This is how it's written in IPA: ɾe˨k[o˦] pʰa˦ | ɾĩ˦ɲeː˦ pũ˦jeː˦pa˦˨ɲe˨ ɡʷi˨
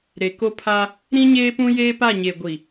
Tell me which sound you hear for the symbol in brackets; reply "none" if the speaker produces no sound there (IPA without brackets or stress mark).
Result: o˦